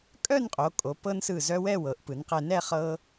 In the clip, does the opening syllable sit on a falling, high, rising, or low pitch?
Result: falling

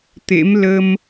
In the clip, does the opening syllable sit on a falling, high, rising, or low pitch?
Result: rising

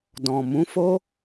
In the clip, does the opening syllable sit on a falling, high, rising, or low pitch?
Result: low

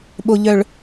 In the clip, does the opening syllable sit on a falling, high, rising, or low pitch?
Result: low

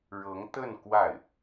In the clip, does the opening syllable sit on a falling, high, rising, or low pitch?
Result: rising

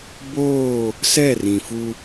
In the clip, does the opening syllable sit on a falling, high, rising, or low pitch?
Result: falling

